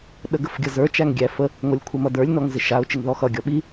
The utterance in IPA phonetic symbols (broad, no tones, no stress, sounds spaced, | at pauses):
ɗ ə ɡ ə f ɡʲ ʌ z ə˞ t͡ʃ æ ŋ ɡʲ æ f ə | ŋʷ ʌ lʲ kʷʰ ɪ m ʌ d ə˞ lʲ n ɔ ŋ z ɪ ʃ a ʊ̯ t͡ʃ ɪ ŋ ð ɔ x ʌ ɡʲ ɔ ɓ i